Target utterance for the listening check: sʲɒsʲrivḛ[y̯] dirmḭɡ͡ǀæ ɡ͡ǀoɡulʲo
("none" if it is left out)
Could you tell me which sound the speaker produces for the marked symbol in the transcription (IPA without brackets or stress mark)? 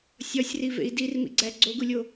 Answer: i̯